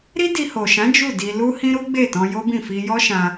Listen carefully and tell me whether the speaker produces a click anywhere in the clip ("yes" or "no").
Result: no